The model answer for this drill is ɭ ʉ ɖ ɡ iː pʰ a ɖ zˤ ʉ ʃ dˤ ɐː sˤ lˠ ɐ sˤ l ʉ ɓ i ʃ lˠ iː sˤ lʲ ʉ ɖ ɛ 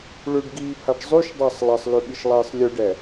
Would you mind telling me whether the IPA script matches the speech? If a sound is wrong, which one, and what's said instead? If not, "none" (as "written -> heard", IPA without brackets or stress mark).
none